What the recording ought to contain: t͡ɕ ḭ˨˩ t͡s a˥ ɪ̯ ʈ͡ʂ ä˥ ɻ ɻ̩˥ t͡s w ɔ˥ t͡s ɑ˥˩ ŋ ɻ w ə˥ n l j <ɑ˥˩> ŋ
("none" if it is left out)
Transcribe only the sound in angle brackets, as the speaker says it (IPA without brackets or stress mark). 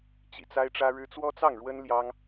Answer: ɑ˥